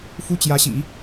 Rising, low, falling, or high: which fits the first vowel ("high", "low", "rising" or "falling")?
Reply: high